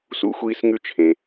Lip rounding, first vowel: rounded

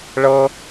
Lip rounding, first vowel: unrounded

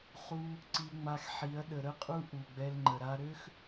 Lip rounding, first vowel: rounded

